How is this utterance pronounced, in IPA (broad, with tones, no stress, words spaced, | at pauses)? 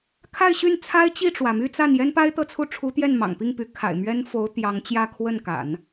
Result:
kʰa˥˧ɪ̯ɕy˥˩nt͡sʰa˥ɪ̯ t͡ɕi˥˩ʈ͡ʂwä˩my˥˧ t͡sa˥˩njɛ˥n pa˥ɪ̯t̪ɤ˥˧t͡sʰu˥˩ʈ͡ʂʰu˧˥ t̪jɛ˥˩nmɑ̰˨˩ŋpi˥˩ŋpy˧˥ kʰa̰˨˩ɪ̯mɥɛ˥nfo˧˥ʊ̯ t̪jɑ˧˥ŋt͡ɕjä˥˧ kʰwə˥˩nka̰˨˩˦n